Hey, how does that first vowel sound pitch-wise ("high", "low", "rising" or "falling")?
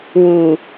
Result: low